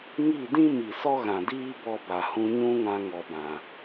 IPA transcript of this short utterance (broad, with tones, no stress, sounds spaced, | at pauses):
ŋ i˦˨ d ĩ˦ m i˨ s ɔ˦ ɣ ã˨ d iː˦ b ɔ˧ b a˨ h ũ˧ ɲ ũ˦ ŋ ã˧ ŋ ɔ˨ b ã˨